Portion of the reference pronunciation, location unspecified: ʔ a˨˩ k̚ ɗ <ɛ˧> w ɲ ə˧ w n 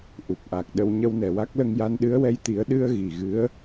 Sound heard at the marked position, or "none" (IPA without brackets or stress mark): ə˧